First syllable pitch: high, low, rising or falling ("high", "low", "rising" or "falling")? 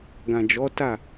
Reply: low